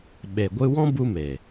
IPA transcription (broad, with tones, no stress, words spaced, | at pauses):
ɓe˨ ɡʷɨ˦ wɔ̃˦ bu˦me˨